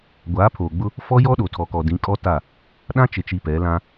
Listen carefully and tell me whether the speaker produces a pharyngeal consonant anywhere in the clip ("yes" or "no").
no